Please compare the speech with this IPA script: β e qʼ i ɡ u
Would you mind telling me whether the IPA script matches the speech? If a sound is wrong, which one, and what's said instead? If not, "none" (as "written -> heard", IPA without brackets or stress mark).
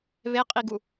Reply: none